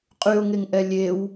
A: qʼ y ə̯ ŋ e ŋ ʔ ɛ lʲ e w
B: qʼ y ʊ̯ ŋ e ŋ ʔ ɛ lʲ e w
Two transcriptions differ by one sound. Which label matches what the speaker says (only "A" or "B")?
B